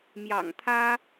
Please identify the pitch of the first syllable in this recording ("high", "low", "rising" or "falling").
low